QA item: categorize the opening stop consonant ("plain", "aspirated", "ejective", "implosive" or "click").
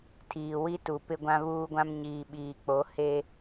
aspirated